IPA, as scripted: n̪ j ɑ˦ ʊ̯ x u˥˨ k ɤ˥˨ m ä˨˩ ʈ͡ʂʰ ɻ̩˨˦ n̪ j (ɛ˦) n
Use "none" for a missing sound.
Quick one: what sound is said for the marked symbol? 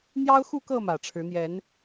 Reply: ɛ˨˦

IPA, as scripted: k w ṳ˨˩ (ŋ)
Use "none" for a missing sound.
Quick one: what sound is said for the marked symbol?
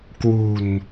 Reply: n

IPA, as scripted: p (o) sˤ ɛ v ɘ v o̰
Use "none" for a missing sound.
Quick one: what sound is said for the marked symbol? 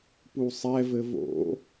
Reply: u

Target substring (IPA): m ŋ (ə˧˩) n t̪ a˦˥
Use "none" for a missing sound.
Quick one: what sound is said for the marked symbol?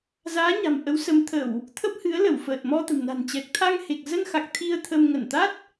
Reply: ə˧˩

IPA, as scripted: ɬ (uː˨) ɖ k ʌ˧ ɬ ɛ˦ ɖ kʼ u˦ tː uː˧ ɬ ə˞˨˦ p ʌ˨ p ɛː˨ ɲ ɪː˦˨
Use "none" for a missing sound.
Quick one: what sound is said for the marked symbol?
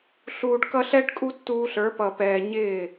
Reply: uː˨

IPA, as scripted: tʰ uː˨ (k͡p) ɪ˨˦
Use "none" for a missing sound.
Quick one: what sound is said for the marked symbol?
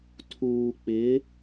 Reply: k͡p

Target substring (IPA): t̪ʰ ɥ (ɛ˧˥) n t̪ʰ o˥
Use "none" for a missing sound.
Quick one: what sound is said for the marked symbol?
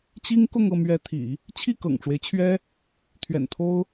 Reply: ɛ̰˨˩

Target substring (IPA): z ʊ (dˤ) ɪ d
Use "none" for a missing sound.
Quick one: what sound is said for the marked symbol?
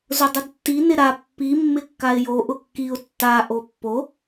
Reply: dˤ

